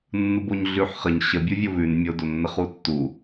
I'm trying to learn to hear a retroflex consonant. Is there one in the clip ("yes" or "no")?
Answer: no